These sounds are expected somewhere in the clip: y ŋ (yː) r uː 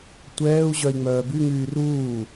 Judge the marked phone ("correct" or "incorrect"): correct